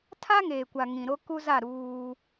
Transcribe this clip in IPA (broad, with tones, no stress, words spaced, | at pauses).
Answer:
tʰa˦ŋeː˨kʷa˨ ŋĩ˨ɾo˦ku˦za˦˨ ɾuː˦